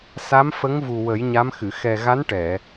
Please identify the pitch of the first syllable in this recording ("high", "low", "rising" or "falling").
rising